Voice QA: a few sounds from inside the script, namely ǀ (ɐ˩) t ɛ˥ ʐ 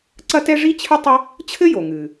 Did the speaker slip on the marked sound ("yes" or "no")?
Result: yes